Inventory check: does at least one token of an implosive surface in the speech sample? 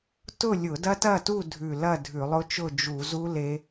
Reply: no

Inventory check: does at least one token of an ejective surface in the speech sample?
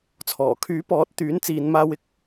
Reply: no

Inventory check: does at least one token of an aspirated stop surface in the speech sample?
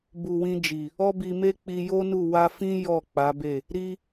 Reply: no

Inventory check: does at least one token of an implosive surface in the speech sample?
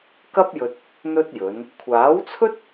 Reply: no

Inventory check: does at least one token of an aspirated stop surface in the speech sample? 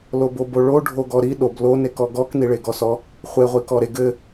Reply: no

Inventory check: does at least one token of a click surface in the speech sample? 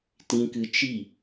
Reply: no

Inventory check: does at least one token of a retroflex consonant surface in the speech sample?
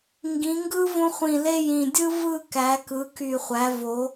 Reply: no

